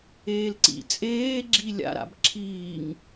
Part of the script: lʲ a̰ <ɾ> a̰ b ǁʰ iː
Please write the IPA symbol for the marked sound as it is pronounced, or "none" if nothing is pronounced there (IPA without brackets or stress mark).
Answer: ɾ